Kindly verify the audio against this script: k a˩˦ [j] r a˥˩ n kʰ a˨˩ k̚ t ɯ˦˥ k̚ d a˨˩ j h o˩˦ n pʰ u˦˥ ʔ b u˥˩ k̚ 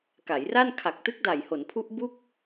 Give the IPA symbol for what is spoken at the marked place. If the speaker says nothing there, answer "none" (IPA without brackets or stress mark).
j